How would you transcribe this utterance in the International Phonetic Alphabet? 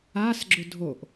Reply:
a s ɡ͡ǁ ʊ dʱ o ʔ

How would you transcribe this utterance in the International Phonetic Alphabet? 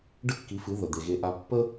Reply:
ɖ ə˥ kː i˩˥ f ɨ˩˥ ð ə˩ d̪ e˩ ɣ e˩˥ ʔ a˩˥ pː ə˥

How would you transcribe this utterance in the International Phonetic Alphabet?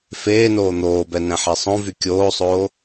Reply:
f eː n oː n̪ oː b ɛ n ɛ̃ ħ ɛ sˤ õ v y kʲ oː sˤ oː

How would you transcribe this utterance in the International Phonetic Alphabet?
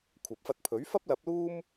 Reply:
kʷʰ ɐ˨ p̚ f ɐ˧ t̚ pʰ ɵ˨˥ ɥ f ɐ˥ p̚ l ɐ˨˥ p̚ l uː˥ m

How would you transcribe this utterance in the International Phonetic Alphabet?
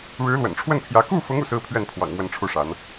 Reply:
ɻ ɻ̩˧˥ l w ə̰˨˩ n ʈ͡ʂʰ w ə˥˩ n pʰ j ä˧˥ k u˥˩ f ʊ˧˥ ŋ ṵ˨˩ s ɹ̩˥ pʰ ɥ ɛ˥˩ n pʰ w ɑ̰˨˩ ŋ m w ə˥˧ n ʈ͡ʂʰ u˥˩ ʂ a˧˥ n

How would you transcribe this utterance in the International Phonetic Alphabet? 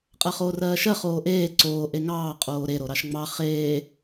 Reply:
qʼ ɜ χ oː r ɜː ʃ ɜ χ oː ʔ eː ǀ oː ʔ e ŋ ɑː qʼ oː ɾ e ɾ o ɾ ɑ ʃ ŋ͡m ɑ χ eː

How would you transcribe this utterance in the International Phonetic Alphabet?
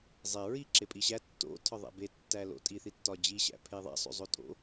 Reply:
zˤ e ɹ i ǁ e pʼ i ɕ æ tː o̰ tʰ ɒ ðˤ æ̰ b e tː æ l o̰ tʼ i θ i tː ɒ d͡ʑ i ɕ æ̰ pʰ e ðˤ æ̰ sˤ o̰ zˤ o tʼ o̰

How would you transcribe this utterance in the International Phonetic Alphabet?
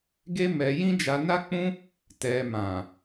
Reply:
ɡ e˦ m ɛ˧ j ĩ˦ d͡ʒ a˧ n a˦ k͡p ũ˦ | t ɛ˧ m ã˨

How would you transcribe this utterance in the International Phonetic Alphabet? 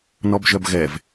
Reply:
n ɔ b ʒ œ b ɣ ɛ v

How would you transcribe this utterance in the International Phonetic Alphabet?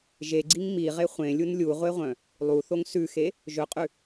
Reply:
ʒ e ɡ͡ǀ i ŋ m i ʁ e χʷ ẽ lʲ u n lʲ u ʁʷ e ʁʷ œ̃ | lˠ u θ o ŋ s ʉ x e | ʒ ɵ qʼ ʉ

